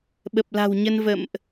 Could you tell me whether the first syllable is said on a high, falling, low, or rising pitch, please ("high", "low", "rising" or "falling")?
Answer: low